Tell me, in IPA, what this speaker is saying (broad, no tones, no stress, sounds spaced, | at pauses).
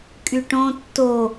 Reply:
kʼ y ʈ õ tː o